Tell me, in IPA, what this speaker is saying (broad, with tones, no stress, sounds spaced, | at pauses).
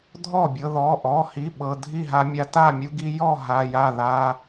dʱ ɔ˥˩ bʲ ɤ˧ ð ɔ˩˧˩ ʔ ɔ˩˧˩ h i˩˧˩ ɓ ɤ˩˧˩ dʱ i˥˩ ɦ a˧ mʲ a˧ t a˥˩ mʲ u˧ ɡ i˧ j ɔ˥˩ ɦ a˩˧˩ j a˥˩ ð a˩˧˩